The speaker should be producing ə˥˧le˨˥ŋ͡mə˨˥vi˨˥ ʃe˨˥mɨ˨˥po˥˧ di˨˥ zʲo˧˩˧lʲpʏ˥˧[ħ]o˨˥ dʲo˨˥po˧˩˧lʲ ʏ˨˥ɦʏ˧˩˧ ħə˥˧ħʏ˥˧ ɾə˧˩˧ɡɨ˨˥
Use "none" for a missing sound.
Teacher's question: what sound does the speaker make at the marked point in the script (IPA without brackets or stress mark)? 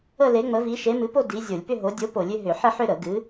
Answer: ɦ